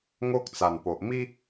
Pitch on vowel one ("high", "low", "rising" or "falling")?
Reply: high